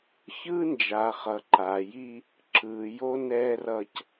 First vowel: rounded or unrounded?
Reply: unrounded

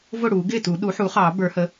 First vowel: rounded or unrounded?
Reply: rounded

